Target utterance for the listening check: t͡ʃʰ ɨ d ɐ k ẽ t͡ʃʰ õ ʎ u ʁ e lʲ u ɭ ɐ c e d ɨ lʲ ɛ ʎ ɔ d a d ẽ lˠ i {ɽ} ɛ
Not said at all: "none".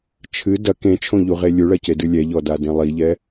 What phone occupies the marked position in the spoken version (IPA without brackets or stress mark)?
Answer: ʎ